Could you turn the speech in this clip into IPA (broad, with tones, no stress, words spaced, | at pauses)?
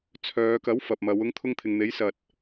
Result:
t͡sʰœː˨˧kɐ˨˥w fɐ˨p̚mɐ˨˧w ʊ˧ŋt̪ʰʊ˧ŋ t̪ʰɪ˨ŋn̪e˨˥j sɐ˨t̚